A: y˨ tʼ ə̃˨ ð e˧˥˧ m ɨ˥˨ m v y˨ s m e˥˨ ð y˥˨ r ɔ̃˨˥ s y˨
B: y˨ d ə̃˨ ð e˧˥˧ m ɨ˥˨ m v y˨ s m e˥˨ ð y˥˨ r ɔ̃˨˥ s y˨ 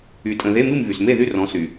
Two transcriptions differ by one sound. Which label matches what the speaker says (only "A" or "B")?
A